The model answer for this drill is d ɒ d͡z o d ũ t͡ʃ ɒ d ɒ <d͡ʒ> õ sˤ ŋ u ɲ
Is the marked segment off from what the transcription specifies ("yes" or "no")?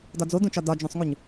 no